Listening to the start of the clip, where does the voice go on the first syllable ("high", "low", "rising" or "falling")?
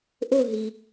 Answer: falling